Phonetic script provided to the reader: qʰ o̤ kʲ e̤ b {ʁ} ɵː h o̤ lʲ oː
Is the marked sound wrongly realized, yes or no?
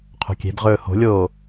no